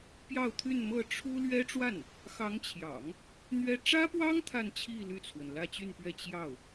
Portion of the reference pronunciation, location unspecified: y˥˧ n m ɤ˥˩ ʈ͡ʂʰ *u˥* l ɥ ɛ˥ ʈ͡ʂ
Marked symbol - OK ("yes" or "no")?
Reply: yes